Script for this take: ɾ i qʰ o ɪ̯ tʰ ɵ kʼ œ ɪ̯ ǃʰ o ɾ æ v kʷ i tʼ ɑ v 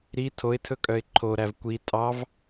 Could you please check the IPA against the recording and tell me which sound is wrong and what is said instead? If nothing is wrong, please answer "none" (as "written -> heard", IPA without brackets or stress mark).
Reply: qʰ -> tʰ